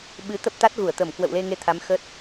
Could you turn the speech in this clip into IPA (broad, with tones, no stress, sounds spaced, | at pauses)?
ɓ ɨ˨˦ t̪ ə˦˥ p̚ t̪ a˦˥ t̚ ɣ u˧˩ ə̯ t̪ ə˧˩ m k w ə̰˧˨ w l e˧ ŋ e˧ t̪ʰ a˨˦ m x ə˦˥ t̚